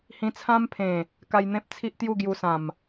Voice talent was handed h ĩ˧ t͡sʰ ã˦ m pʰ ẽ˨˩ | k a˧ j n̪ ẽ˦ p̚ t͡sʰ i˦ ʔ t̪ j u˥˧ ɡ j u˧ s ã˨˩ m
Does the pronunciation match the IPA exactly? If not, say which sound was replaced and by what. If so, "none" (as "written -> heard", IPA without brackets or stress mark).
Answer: none